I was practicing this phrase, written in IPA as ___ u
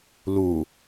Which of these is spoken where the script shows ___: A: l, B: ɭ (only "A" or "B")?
A